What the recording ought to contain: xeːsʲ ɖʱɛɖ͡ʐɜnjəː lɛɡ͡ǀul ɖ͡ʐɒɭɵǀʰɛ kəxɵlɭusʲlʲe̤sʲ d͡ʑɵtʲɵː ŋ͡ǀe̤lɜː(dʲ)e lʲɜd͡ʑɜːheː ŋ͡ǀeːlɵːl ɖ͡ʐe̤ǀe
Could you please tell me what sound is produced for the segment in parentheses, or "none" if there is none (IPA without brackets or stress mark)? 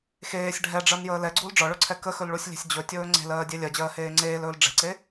dʲ